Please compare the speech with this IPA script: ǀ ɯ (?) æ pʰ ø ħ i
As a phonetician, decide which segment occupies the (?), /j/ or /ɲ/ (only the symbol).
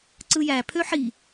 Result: j